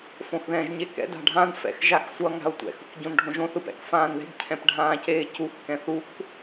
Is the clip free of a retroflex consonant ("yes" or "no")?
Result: no